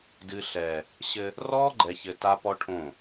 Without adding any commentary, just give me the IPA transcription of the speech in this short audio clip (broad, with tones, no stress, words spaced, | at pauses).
dɨ˨ɬɛː˨ | ɕɘ˦ | rɔː˦ɡ͡ǃɛ˨çɘ˨ ta˦pɔ˦ʈʰõ˦˨